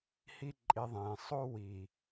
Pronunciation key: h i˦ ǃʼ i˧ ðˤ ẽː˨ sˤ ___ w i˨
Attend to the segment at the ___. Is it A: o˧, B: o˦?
B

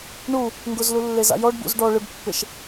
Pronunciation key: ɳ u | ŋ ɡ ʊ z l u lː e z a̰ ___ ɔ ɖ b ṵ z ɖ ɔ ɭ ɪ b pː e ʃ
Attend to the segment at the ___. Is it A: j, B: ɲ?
A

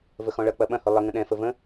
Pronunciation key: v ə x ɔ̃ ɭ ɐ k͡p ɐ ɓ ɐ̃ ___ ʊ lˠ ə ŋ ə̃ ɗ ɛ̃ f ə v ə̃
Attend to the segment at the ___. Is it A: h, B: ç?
A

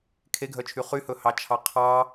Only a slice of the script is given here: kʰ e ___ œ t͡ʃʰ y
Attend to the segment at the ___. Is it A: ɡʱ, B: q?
A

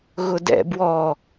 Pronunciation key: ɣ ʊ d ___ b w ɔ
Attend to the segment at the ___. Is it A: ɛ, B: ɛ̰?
B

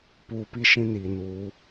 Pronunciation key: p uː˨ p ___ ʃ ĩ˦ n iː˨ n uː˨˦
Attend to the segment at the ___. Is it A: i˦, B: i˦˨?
B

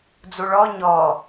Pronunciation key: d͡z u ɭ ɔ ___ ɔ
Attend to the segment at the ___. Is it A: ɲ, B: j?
A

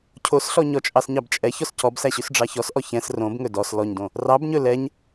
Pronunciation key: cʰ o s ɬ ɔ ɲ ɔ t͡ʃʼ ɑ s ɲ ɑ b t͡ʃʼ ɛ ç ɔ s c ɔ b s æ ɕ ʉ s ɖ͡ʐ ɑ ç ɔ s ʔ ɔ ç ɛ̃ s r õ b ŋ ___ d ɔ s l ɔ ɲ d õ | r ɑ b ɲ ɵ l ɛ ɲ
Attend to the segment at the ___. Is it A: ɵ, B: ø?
A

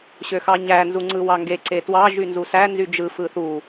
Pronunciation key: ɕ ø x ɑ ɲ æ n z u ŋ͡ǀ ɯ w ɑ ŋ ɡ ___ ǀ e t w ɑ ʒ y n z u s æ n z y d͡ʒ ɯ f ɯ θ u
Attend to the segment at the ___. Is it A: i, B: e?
B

